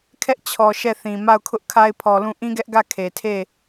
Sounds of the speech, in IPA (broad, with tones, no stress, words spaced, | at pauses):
kʰɛ˦ʔt͡ɕʰɔ˨ ʃɛ˦˨θĩ˨ ma˦˨ʊ̯kʰʊ˦ʔ kʰa˦ɪ̯pʰɔ˨lũ˦˨ ʔĩ˦ɡɛ˦ʔɡä˦˨ kʰe˨tʰe˦˨